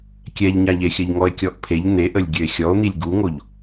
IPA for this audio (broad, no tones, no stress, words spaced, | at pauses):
kʲɛʎɲaʎexʲəʎ ŋɔe̯kʲɔʔpʰeʎ n̪eʔəlʲ ɡʲøe̯xʲɔo̯n̪ilʲ ɡuŋoʎ